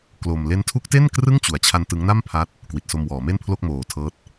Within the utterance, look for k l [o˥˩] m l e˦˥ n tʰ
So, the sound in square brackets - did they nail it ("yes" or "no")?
no